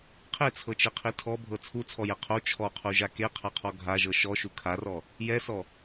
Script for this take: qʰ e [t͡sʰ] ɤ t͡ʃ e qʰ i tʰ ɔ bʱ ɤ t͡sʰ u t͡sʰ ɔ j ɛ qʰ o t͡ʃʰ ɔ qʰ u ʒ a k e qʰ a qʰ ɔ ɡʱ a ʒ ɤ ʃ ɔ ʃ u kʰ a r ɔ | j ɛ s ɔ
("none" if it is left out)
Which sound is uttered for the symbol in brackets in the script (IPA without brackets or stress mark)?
t͡sʰ